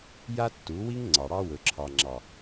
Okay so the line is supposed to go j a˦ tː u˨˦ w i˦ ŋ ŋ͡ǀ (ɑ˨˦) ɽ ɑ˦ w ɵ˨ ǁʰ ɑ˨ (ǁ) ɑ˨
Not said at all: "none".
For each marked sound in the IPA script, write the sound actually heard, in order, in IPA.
ɑ˨, ŋ͡ǁ

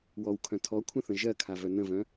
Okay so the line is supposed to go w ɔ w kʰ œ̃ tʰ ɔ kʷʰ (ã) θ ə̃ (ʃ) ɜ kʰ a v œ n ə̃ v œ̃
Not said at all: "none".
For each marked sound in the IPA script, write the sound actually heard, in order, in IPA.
ə̃, ʒ

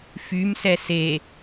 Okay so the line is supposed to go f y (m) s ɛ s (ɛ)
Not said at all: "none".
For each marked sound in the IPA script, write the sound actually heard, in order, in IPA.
m, e

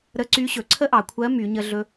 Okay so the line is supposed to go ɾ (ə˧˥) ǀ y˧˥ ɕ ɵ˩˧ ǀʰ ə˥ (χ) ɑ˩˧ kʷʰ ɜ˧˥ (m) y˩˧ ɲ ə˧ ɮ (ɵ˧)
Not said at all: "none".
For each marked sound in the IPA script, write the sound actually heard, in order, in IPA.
ə˧˥, ʔ, m, ɵ˧

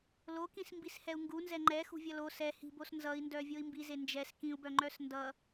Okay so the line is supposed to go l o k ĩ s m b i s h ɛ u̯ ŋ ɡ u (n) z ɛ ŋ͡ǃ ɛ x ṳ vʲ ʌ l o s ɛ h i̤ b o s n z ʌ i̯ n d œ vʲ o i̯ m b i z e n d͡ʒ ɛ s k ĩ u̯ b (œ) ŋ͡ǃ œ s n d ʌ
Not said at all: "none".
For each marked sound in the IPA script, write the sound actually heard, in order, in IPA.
n, œ

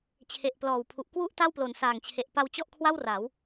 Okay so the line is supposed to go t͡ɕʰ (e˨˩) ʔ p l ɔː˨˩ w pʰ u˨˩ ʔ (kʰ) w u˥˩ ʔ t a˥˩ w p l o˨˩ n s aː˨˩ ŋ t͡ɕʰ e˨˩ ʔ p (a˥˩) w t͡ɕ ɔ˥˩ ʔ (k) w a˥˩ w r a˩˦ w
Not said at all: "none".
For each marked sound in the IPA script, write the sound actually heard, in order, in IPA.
e˨˩, k, a˧, kʰ

